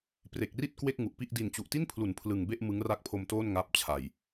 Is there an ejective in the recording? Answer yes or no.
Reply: no